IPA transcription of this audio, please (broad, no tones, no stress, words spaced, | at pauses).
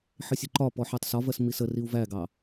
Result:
ħɪsʲʊǃɒpɔ ħɛtˤsɒvɜs misəriu̯ væɡɑ